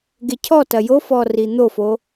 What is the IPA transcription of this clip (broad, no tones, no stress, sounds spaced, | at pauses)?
ɡ e cʰ ɔ t ɐ j o f ɔ r i n̪ o f o